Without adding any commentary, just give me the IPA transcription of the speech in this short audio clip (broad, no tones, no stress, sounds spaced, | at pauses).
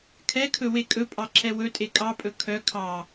kʰ ɛ kʰ ɵ w e kʼ ɵ pʼ ɑ ǁʰ ɛ w ɵ tʼ e kʼ ɑ pʼ ɵ kʰ œ kʰ ɑ